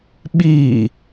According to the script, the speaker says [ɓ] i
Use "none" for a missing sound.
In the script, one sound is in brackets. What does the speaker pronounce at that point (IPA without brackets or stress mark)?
ɓ